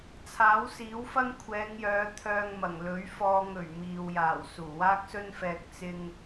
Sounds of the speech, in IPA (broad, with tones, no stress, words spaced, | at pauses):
t͡sʰaː˨˥wsiː˨˥wfɐ˥ŋ kʷʰɛː˨˧ŋjœː˨˧ t̪ʰœː˧ŋmɐ˨˩ŋ lɵ˨˥ɥfɔː˧ŋ ɵ˨˩ɥ miː˨w jaː˨˩w suː˨˩waː˥k̚sɵ˥nfɛː˧k̚ t͡sɪ˥ŋ